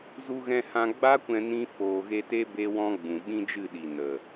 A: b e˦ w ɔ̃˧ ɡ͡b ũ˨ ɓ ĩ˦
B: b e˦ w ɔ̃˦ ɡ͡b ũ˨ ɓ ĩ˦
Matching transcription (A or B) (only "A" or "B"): B